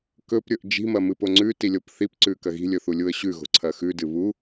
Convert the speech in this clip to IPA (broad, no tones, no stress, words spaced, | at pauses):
kɵpɾʲɵʔ d͡ʒi̤mɐmɨpo ŋ͡ǀʉtilʲop θipǀʉkɐ ɣi̤lʲɵθulʲuə̯ ɕʉɣo̤ǀʰɐ xʉdɨ βu